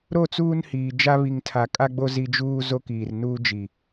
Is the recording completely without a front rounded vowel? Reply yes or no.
yes